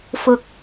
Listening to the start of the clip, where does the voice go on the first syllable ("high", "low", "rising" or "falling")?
low